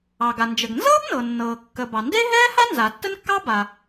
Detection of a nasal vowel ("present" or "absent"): absent